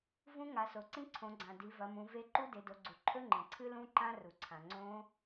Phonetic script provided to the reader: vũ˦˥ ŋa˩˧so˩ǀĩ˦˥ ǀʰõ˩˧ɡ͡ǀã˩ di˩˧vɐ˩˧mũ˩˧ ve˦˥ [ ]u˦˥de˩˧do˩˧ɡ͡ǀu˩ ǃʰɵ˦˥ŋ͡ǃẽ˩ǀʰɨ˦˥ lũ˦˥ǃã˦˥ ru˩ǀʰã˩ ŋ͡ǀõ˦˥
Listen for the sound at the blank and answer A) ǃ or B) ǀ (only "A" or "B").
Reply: A